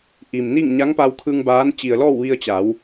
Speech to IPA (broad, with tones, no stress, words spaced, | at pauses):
ʔiː˩mni˥˨ŋ ɲa˧˥ŋpa˧wkʰɯː˧ŋ baː˧˥n t͡ɕi˩ə̯lɔː˥˨wʋi˧ə̯ t͡ɕa˩˧w